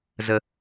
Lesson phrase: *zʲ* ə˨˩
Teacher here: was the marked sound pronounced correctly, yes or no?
no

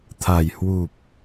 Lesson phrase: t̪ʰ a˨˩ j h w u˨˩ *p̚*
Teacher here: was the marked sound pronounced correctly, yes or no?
yes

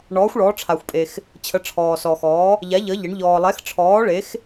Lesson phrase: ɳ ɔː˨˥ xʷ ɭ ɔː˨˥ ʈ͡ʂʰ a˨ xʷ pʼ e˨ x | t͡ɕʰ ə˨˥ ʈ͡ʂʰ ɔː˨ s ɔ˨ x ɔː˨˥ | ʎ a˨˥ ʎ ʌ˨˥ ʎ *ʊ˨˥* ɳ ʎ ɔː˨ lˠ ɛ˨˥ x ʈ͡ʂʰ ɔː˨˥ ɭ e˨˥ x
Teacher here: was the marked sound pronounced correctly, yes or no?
no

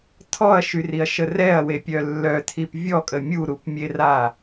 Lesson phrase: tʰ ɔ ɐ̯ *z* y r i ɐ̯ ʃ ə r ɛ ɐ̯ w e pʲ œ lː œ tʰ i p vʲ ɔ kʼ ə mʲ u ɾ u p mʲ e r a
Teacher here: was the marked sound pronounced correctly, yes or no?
no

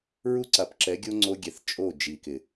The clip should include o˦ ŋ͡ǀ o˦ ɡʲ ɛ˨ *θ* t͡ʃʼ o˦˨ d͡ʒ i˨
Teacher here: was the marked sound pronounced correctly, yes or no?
yes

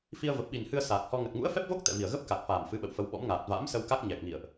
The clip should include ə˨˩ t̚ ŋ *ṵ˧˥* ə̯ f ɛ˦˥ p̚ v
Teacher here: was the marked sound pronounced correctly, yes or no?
yes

